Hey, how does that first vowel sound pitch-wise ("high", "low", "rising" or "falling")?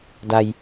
low